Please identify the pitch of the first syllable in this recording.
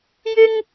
high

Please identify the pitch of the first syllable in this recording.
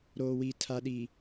low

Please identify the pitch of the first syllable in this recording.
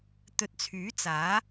rising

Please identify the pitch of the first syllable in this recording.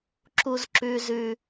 high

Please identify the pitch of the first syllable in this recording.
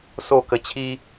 falling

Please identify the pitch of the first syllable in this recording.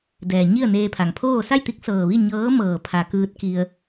low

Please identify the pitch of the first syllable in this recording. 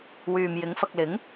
low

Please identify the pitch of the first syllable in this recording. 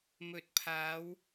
rising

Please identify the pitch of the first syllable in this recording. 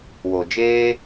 low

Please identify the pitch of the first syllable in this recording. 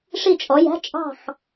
falling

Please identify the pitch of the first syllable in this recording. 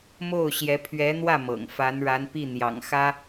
falling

